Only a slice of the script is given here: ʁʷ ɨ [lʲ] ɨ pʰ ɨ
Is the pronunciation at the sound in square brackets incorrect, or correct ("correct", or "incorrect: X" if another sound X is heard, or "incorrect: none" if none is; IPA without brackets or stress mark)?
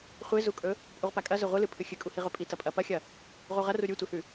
incorrect: l